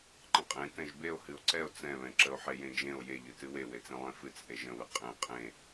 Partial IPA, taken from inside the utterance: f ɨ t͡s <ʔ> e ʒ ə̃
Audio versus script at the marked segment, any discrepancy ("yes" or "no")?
no